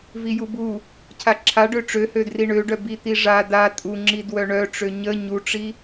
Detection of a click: present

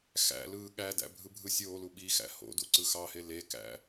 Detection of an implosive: present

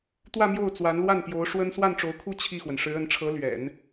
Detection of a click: absent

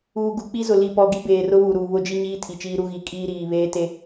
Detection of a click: absent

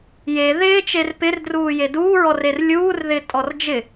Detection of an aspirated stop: absent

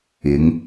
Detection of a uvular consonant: absent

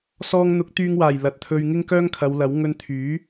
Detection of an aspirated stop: present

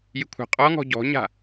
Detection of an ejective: present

